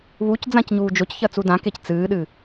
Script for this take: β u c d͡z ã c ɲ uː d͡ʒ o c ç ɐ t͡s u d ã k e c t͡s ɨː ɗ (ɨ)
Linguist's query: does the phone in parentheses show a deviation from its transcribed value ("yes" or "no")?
no